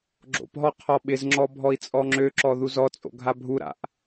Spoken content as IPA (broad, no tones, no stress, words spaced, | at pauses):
ɡ͡ǁo̰pɦɔ qʰɔɓɪzŋ͡ǁɔ bʱɔi̯t͡sʼɔŋ͡ǁøǁɔ ðuzɔt͡sʼo̰ ɡʱabʱuɾa̰ʔ